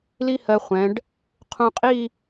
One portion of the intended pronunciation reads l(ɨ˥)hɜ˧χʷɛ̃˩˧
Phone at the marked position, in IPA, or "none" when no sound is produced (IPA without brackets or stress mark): i˥